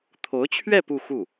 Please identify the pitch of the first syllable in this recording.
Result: rising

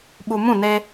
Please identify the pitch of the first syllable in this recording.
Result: low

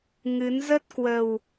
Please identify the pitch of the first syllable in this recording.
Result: rising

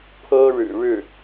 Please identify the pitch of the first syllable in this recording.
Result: high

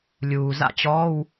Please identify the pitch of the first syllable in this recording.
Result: low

